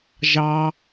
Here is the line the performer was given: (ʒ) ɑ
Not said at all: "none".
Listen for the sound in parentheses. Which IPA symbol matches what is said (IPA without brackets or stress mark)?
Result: ʒ